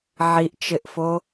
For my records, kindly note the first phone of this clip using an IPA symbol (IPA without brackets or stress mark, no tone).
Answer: ʕ